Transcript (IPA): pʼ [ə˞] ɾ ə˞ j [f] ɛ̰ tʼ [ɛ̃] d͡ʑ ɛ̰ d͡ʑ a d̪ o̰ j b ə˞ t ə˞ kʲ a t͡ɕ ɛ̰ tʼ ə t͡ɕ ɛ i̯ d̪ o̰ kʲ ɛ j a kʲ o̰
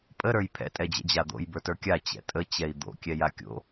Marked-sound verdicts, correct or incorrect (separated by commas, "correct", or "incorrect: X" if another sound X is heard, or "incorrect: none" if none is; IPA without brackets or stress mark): incorrect: ə, incorrect: pʰ, incorrect: ɛ